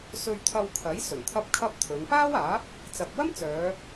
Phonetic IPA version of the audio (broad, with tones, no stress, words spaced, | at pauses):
sɵ˧ɥt̪ʰɐ˧wkʰɐ˨˥j sɵ˨˩nt̪ʰɐ˥p̚kʰɐ˥p̚t̪ʰɵ˨˧n paː˥waː˨˥p̚ | t͡sɐ˨p̚wɐ˥m t͡sœː˨˧